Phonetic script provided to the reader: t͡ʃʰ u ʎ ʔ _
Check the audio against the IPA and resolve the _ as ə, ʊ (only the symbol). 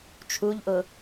ʊ